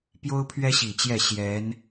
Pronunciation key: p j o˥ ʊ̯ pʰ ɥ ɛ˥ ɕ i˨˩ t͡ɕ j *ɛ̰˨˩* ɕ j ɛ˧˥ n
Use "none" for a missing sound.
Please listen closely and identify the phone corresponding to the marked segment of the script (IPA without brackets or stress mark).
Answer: ɛ˥˩